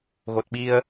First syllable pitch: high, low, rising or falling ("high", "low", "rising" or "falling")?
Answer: low